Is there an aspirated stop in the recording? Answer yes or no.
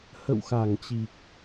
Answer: no